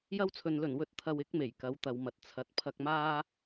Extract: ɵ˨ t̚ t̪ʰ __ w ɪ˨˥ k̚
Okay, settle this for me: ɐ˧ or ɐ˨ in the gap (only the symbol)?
ɐ˨